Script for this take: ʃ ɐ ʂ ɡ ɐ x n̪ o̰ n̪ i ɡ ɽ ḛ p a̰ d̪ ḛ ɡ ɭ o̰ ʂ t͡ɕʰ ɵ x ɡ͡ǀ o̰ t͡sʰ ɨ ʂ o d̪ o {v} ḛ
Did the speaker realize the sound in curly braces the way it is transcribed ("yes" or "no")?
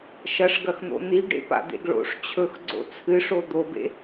no